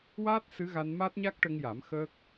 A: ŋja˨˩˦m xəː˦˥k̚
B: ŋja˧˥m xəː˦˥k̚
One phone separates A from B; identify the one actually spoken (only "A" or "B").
A